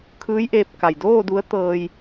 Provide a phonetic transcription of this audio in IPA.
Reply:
kʰɯː˧˥jʔeː˧p̚ ka˩jdoː˥˨du˧˥ə̯ t̪ɤː˧j

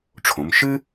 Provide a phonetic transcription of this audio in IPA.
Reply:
ʈ͡ʂʰõ˩˧m ʃɨ˥

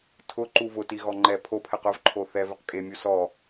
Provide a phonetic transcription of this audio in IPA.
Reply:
tʰʊǃu vʊtiɣɔ ŋ͡ǃɛ pʰopʰɛq ʊvǃʰo θɛvɪq kʼemʲu sɔ

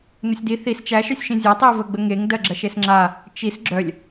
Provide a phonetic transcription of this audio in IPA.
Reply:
nəsʲdi θis t͡ʃæʃœsʲʃĩ zʲatˤivəɡ͡bə ŋeŋ dɜɡ͡ǁɜʃesŋ͡ǁa | t͡ʃis ɡ͡ǁœlʲ

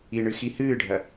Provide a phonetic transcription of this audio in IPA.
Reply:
iɳɨ xihɨːɖʱɐ

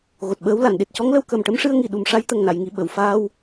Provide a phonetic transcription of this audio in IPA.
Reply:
ɣo˨˩t̚ɓəː˧˥wla˨˩˨n ɗe˨˩t̚cɔ˧˥ŋlə˧w kə˨˩mʈə˧mʂɨ˧ə̯ ŋi˨˩ ɗu˨˩mʂa˧j t̪ə˨˩ŋna˨˩˨jŋi˨˩˨ ɓə˨˩˨wfaː˧w

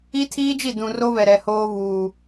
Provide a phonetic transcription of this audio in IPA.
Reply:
i˦tʰiː˦d͡ʒi˦˨ dũ˨ro˦ βɛ˨ɾɛ˨ hoː˦βuː˨

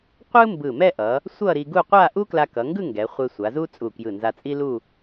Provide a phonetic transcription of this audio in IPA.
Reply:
qʷɯ˥mbɯ˧˩mɛ˥˧ ʔʌ˩˧ | sʷʌ˥˧ɾi˧ɡu˥˧ qʷa˥˧ ʔu˥kla˧kʌ˩˧ŋɡɯ˥˧ ŋɡɛ˩˧ χʷe˧sʷa˩˧zu˥ t͡sʼu˧˩kjɯ˧˩nza˧t͡sʼi˥ lu˥˧

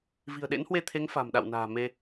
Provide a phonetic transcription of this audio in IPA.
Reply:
vi̤˨˩ə̯ɗḛ˧˥nhwe˧t̪ʰe˨˦ŋ fa̤˨˩mɗa̰˧˨wna̤ː˨˩ me˧

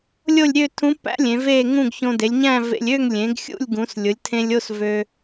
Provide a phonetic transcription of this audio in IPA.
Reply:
lʲo˥˧lʲɾʲø˥˧tʰũ˧˥pːæ̰˧˥ lʲẽ˩˧ve˥˧ ŋũ˥˧ɡ çõ˧de˩˧lʲɲæ̃˥˧ vḛ˧lʲ ø˥˧ŋlʲẽ˩˧ɡ xʲṵ˥˧lʲɡũ˩˧s lʲʊ˩˧lʲtʰẽ˧lʲo˥˧s vø˧

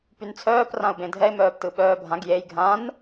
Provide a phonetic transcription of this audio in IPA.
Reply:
pynt͡sʰœːp rãʊ̯bẽdʱɛɪ̯ mœːptɯɓœːbʱãɡ jej ɡʱãn

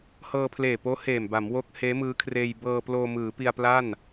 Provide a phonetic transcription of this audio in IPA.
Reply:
hɤː˧pʰleː˨˩poː˦˥ heː˨˩mba˩˦m wo˦˥k̚ heː˦˥mɯː˦˥kʰreː˧j bɤː˧ ploː˧mɯː˩˦pi˧a̯pla˥˩n

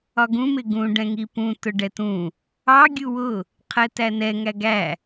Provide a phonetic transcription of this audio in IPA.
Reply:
ɒɡũ mɪɡũ ɖɛ̃ŋipũ tʊɖɛtũ | ɑ ɡʲuwʊ | qʰɛtænɛ ŋæɡæ

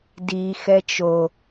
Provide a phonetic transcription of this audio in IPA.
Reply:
di xɛt͡ʃo

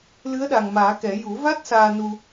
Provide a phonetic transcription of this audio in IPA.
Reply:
lɨ˧˥ə̯ɗa˨˩ŋmaː˨˩˦kɛ˨˩˦ ju˨˩˦va˦˥t̚ saː˧nu˧

